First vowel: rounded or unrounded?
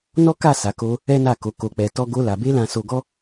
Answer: rounded